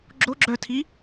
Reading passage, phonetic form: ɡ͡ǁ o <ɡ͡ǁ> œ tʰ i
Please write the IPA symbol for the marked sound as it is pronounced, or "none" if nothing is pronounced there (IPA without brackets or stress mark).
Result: ɡ͡ǁ